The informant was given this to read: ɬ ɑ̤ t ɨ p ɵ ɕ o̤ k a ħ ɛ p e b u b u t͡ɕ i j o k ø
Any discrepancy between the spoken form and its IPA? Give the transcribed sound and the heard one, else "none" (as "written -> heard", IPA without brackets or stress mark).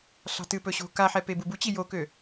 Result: none